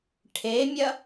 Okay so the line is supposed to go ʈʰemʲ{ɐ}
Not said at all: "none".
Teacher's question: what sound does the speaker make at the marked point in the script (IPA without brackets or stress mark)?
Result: ɐ